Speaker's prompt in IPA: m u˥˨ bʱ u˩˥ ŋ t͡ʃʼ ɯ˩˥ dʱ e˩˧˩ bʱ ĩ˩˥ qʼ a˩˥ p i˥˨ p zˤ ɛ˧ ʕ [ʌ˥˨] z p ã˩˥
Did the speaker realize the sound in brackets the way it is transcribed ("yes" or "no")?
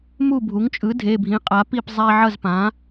yes